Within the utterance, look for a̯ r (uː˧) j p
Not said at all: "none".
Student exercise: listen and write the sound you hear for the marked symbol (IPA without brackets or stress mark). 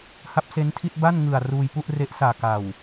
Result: uː˧